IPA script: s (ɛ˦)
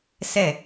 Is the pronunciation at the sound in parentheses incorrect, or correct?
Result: incorrect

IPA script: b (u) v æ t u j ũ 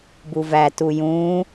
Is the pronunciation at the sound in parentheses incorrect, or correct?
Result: correct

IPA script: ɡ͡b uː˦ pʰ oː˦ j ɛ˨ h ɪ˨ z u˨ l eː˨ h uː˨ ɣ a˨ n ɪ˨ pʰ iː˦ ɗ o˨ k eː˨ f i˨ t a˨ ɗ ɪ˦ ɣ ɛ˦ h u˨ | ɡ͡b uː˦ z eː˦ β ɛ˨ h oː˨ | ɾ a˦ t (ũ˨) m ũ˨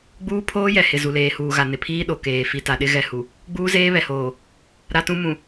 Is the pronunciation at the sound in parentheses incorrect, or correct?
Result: incorrect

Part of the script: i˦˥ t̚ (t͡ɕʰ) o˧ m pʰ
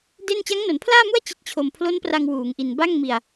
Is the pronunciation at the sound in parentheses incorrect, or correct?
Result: correct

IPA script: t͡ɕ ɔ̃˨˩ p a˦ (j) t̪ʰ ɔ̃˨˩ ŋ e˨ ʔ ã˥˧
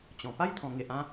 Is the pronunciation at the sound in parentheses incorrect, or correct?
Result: correct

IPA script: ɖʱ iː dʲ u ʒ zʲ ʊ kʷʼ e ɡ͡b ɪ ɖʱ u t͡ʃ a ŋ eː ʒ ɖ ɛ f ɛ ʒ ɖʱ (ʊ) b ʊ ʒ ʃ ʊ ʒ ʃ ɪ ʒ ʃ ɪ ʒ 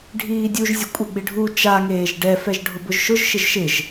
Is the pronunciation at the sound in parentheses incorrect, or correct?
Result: correct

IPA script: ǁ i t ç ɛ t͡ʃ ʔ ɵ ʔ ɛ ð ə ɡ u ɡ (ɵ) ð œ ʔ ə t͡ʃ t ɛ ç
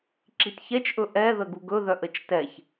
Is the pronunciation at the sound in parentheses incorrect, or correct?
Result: correct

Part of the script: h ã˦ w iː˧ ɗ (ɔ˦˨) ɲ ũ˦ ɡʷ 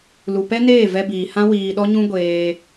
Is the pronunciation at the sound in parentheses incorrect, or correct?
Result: incorrect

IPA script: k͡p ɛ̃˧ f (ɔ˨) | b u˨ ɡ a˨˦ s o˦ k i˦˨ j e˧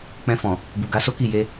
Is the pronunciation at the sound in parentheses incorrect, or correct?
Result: incorrect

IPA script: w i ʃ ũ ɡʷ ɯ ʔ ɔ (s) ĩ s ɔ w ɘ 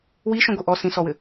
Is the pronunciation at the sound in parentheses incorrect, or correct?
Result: correct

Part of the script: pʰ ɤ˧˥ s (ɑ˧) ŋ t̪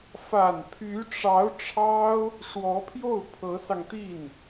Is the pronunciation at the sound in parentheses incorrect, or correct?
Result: correct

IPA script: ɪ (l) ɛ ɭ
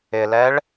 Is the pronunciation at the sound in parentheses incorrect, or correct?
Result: correct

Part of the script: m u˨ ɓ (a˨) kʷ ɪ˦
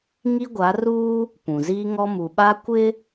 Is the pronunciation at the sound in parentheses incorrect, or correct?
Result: incorrect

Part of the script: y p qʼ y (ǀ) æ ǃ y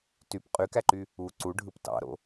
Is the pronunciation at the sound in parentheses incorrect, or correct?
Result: incorrect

